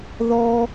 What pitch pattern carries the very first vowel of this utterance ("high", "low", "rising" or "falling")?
high